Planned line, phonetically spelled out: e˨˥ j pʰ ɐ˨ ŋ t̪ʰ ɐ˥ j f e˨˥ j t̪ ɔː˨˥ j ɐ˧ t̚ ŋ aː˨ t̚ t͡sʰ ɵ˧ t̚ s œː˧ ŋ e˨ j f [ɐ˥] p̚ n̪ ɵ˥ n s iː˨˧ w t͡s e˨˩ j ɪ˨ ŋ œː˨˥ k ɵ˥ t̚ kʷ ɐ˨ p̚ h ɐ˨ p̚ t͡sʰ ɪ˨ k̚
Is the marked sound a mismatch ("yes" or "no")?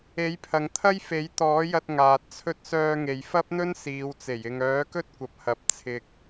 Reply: no